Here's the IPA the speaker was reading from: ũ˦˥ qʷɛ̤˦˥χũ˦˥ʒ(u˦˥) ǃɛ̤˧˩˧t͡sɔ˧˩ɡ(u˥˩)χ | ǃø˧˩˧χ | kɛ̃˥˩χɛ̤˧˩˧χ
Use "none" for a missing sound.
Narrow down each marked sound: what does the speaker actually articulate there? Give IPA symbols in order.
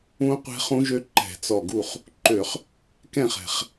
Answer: ø˦˥, u˥˩

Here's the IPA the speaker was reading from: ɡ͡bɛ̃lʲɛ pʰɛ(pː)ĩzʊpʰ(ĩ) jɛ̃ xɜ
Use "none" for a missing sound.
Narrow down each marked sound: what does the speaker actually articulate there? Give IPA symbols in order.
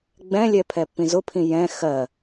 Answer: pː, ĩ

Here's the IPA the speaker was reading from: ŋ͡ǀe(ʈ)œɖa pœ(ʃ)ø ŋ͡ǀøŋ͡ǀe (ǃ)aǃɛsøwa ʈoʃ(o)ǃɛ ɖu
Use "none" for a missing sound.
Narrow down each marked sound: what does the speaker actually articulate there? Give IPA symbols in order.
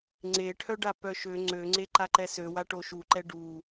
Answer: ʈʰ, ʃ, ǃ, u

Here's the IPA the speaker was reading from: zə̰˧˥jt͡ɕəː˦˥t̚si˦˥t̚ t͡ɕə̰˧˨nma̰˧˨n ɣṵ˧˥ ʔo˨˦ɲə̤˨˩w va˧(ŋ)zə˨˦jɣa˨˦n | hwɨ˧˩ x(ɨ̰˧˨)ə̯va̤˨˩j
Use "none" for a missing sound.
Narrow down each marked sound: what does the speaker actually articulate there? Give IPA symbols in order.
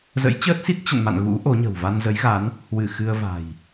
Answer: n, ɨ˧

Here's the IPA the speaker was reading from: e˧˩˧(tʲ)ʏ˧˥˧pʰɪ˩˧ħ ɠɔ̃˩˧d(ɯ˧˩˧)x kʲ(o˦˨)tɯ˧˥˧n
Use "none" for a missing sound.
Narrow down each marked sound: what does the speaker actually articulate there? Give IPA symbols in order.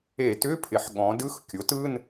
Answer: t, ɯ˧˥˧, o˩˥

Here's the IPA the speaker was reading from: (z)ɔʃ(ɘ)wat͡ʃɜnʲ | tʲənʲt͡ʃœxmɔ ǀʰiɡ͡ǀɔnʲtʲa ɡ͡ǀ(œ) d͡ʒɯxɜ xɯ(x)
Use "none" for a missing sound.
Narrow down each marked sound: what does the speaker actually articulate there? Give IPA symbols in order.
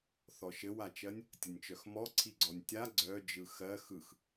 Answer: θ, ɘ, œ, x

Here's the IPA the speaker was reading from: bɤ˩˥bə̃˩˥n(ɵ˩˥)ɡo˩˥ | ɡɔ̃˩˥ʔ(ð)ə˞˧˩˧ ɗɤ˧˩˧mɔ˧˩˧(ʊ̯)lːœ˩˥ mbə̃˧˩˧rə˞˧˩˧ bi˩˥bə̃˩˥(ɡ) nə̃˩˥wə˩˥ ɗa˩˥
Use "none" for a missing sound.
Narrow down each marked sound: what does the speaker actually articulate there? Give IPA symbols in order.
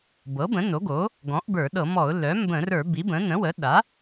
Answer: o˩˥, b, ʊ̯, none

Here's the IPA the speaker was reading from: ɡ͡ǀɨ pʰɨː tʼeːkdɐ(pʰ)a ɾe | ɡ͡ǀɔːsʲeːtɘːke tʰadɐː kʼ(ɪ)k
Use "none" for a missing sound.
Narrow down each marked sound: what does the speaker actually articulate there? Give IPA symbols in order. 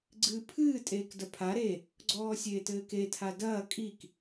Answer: pʰ, i

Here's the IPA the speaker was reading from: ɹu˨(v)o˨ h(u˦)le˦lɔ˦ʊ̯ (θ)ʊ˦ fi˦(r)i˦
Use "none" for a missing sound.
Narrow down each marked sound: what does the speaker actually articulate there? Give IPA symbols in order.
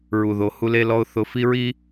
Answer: ð, u˦, θ, ɹ

